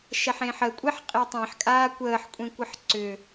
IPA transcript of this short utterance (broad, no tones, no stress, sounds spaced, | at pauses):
ʃ ɛ ħ ẽː ħ ə kʷʼ ɛ ħ qʼ e tˤ ẽ ħ kʼ aː kʷ əː ħ kʷʼ ẽ kʷ ə ħ ǀ ʏ